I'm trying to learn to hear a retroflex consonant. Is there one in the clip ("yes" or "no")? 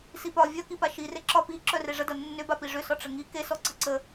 yes